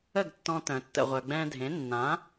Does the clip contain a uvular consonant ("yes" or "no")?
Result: yes